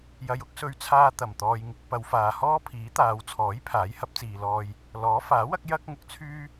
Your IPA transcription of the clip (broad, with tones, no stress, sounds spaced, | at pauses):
j ɐ˧ j ʊ˥ k̚ s ɵ˧ ɥ t͡sʰ aː˧ t̪ ɐ˨˩ m t̪ ɔː˨ j ŋ ɪ˧ k̚ p ɐ˨˧ w f aː˨ h ɔː˥ pʰ iː˨˥ t̪ aː˨˧ w t͡sʰ ɔː˨˥ j pʰ aː˨˥ j h ɐ˨˥ p̚ t͡s iː˨ l ɔː˧ j | l ɔː˨˥ f aː˨˥ w ɐ˥ k̚ j ɐ˥ k̚ ŋ ʊ˧ k̚ t͡sʰ yː˥